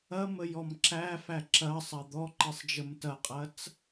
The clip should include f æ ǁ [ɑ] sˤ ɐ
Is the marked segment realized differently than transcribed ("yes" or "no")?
yes